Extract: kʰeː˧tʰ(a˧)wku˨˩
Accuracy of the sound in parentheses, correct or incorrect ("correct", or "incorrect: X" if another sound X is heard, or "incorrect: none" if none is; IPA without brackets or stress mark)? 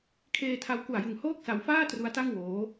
correct